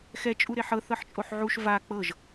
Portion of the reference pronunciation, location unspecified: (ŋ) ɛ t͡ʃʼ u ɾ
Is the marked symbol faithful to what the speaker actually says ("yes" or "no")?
no